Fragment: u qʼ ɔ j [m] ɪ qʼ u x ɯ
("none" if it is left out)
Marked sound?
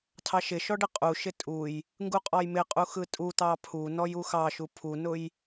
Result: m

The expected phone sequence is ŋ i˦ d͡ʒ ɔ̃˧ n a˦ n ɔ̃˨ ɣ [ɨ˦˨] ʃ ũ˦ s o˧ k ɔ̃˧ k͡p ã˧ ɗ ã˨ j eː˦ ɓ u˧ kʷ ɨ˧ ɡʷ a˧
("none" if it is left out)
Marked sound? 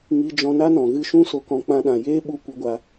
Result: ɨ˧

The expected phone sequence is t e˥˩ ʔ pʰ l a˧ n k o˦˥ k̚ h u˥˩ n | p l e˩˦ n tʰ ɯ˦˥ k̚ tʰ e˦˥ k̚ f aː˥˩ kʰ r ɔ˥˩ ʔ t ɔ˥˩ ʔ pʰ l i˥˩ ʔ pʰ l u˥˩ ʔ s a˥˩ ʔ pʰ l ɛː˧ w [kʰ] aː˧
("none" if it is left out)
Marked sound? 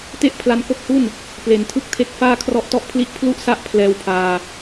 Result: pʰ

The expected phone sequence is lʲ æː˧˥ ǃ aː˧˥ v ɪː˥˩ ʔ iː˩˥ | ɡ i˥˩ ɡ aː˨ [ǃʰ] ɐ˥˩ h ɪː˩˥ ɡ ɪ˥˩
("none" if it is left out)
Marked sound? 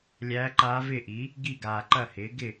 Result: ǃ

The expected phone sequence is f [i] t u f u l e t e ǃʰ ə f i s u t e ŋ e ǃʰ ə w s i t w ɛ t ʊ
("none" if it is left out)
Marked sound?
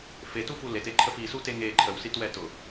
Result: e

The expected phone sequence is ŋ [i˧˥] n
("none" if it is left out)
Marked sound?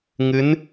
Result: ɨ˧˥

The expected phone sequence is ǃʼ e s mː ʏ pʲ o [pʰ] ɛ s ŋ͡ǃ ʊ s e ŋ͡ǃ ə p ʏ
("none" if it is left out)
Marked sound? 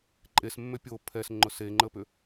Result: pʰ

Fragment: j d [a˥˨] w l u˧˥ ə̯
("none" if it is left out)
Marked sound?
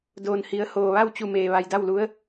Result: a˥˨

